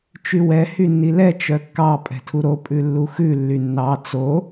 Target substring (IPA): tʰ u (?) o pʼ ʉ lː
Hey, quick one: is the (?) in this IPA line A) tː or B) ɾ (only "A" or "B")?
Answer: B